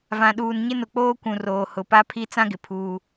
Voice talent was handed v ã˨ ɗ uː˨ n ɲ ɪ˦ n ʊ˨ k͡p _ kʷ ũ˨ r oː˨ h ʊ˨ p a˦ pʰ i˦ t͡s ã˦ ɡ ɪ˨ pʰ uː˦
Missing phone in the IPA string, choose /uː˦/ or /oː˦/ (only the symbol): oː˦